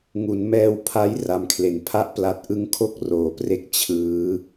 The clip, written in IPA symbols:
ŋ u˩˦ n m ɛː˧ w pʰ a˦˥ j r a˨˩ m kʰ l e˨˩ n pʰ a˦˥ ʔ p l a˨˩ t̚ ʔ ɯ˦˥ ŋ kʰ o˥˩ k̚ r oː˩˦ p r e˥˩ k̚ t͡ɕʰ ɯː˦˥

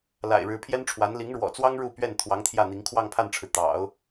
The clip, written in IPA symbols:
l a̰˨˩ ɪ̯ ɻ ɻ̩˧˥ pʰ j ɛ˥ n ʈ͡ʂʰ w a˧˥ n l i˧˥ ŋ ɻ w ɔ̰˨˩ t͡s w ɑ˥ ŋ ɻ u˥˧ p ɥ ɛ˥˩ n t̪ʰ w ɑ˧˥ ŋ t̪ʰ j ä˥˩ n̪ i˧˥ ŋ kʰ w ɑ˥˧ ŋ pʰ a˥˩ n ʈ͡ʂʰ ɻ̩˩ t̪ ɑ̰˨˩˦ ʊ̯

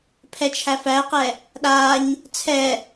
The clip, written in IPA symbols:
pʰ ɛ t͡ʃʰ æ f æ q ɛ | ɗ a ɲ | t͡sʰ ɛ

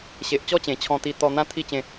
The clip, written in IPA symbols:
ɕ e˨ ʔ t͡ɕ ɔ˥˧ t͡ɕ ẽ˨˩ t͡ɕʰ ɔ̃˧ t̪ i˧ t̪ ɔ˧ n̪ ã˦ t̪ʰ i˥˧ t͡ɕ ẽ˧

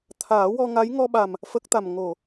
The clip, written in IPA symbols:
t̪ʰ aː˨˩˦ w ɔ˧ ŋ a˧˥ j ŋ ɔ˧ ɓ a˨˩ m | f ə˦˥ k̚ t̪ a˨˩ m ŋ o˨˩˨

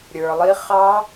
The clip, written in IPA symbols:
ɾʲ ə˞˨ lˠ i˦˥ χ ɑ˦˥

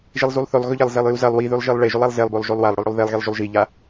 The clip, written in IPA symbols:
ʒ i lˠ z u lˠ θ ɵ lˠ ɣ ɵ ʎ ɐ lˠ z e lˠ j u z ɐ lˠ w i ð ʉ lˠ ʒ i lˠ ɭ e ʒ ʉ lˠ a lˠ z e lˠ b o lˠ ʒ o lˠ w a lˠ ɽ ɵ lˠ ɽ o lˠ ð e lˠ ɣ i lˠ ʒ u lˠ ʒ i ʎ a

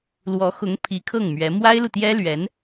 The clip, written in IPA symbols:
l w ɔ˧˥ x ʊ˧˥ ŋ pʰ i˧˥ kʰ ɤ˥˩ ŋ m ɥ ɛ˧˥ m w a˥ ɪ̯ l u˨ t̪ j ɛ˥ l ɥ ɛ˧˥ n

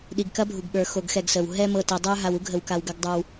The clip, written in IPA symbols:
ɗ i˨ ɡ k ɐ˦ bʱ u˨ ɡ ɓ ə˞˨ x o˨ ɡ x ɛ˨ ɡ s ə˨ w ɦ ɛ˦ m ɤ˨ t ɛ˨ dˤ ə˞˦ ɦ a˨ w u˦ ɡʱ ə˨ w k a˨ w ɡ ɐ˦ ɡ dˤ ə˞˦ w

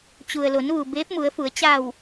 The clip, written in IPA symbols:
t͡ɕ u˩ ə̯ l o˩˧ n ʋ u˩ b eː˧˥ p̚ m u˩˧ ə̯ f u˩˧ ə̯ t͡ɕ a˧˩ w

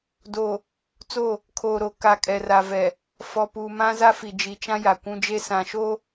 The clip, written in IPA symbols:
d oː˨ | t͡s oː˦˨ | kʰ oː˨ ɾ o˨ k a˨ kʼ ɛ˨ r a˨ v ɛ˨ | f ɔ˨ p uː˨ m ã˦ z a˦ f i˨ d͡ʒ i˨ t͡ʃ ã˦ j a˨ kʷ ũ˦ d͡ʒ e˦ s ã˨ ʃ oː˦

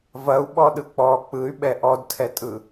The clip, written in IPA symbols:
v ɐ u̯ ɓ ɔ ɗ ɯ k͡p ɔ k͡p ɯ y̯ ɓ ɛ ʔ ɔ d tʰ ɛ tʼ ɯ

